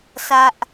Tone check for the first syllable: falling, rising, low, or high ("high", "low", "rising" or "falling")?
low